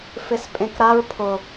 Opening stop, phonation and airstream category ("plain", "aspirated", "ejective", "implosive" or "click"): ejective